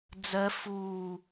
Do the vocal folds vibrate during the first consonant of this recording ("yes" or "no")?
yes